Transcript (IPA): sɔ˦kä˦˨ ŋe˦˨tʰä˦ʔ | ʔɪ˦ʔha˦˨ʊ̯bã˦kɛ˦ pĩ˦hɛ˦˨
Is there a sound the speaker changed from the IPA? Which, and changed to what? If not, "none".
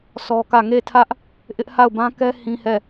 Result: p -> h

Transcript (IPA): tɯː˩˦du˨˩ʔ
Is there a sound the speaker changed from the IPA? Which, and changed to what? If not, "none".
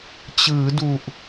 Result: t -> t͡ɕ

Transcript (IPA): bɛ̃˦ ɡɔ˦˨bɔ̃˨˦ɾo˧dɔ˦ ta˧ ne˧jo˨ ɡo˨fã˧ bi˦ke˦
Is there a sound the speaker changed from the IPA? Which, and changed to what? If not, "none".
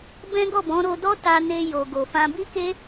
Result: none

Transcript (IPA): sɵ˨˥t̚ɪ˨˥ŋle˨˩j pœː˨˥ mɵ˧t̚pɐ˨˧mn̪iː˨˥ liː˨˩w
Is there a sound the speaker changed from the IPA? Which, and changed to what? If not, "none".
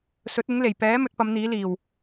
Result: œː˨˥ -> ɛː˨˥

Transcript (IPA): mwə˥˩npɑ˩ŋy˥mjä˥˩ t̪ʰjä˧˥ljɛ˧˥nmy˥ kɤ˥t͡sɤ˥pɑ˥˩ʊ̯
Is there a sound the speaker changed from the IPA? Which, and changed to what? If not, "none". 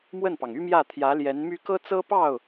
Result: none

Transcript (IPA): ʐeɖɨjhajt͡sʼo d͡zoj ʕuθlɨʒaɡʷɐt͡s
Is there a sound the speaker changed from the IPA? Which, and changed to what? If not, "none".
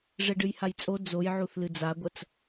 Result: ʒ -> d͡z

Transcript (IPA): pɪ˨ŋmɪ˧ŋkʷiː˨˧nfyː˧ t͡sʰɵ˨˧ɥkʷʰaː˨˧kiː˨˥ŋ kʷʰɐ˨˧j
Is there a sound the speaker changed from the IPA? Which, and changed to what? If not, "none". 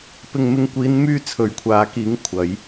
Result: f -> m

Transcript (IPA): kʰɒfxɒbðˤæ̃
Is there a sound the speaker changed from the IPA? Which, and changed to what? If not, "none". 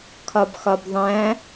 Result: f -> b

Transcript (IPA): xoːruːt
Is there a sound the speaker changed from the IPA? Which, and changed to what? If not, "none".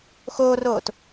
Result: uː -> oː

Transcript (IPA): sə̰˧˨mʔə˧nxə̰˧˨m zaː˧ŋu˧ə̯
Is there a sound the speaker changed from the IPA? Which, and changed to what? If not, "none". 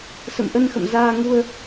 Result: none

